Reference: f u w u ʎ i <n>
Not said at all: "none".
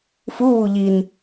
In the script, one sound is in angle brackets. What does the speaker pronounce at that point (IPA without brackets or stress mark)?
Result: n